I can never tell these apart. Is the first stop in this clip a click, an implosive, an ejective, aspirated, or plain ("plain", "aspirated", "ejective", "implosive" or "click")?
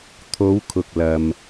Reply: aspirated